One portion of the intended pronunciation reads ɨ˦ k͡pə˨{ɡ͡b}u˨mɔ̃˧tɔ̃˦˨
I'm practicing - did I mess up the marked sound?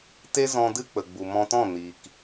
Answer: no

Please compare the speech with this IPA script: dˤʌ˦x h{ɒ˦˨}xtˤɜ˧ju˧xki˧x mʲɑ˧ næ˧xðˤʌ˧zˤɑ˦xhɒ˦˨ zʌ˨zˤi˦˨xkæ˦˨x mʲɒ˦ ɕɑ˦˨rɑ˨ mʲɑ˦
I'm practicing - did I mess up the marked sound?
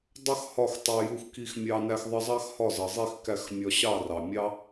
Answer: no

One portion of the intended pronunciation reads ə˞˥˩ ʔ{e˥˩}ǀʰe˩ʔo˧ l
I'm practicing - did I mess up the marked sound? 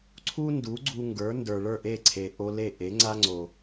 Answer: no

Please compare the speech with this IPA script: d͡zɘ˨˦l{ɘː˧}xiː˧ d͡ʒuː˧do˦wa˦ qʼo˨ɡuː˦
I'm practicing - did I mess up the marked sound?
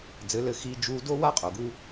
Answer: no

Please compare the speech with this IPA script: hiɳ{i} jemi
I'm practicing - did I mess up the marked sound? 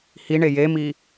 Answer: yes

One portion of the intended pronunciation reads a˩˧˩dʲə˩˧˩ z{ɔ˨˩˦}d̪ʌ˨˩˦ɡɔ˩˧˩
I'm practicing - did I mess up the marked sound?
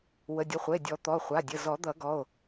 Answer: no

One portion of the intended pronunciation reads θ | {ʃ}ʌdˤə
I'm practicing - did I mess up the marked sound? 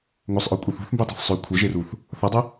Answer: yes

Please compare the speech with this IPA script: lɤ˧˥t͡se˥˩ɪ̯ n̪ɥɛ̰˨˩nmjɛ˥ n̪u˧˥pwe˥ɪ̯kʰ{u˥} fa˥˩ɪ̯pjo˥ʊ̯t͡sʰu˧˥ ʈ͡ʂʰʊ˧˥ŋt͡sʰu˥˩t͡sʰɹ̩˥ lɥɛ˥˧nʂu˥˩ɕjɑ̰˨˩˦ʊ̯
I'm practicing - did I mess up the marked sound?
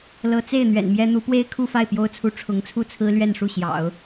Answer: yes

